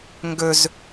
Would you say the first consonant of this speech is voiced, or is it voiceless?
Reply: voiced